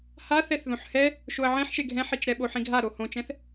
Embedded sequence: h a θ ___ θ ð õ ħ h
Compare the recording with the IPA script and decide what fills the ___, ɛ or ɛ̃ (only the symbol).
ɛ